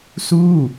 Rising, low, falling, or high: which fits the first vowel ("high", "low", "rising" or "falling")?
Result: falling